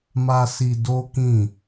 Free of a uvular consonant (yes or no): yes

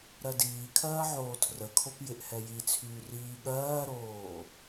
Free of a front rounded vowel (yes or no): no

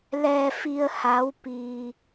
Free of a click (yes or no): yes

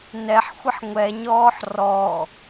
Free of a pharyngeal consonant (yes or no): no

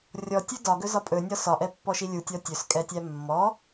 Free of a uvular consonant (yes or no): yes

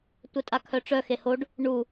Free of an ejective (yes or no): no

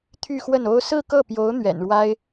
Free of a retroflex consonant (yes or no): no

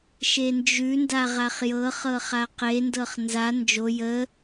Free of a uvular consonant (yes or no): no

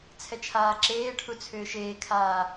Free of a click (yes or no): no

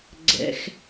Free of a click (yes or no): no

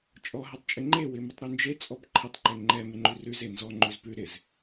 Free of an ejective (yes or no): no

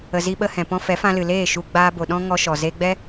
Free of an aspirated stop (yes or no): yes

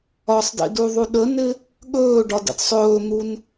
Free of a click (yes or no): yes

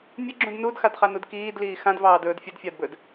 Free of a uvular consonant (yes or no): no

